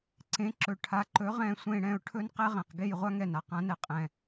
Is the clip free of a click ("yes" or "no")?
no